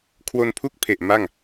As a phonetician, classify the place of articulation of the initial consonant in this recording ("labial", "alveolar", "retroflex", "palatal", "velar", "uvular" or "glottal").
velar